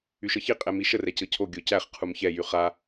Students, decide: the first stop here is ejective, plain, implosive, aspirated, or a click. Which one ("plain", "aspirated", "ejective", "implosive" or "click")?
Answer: ejective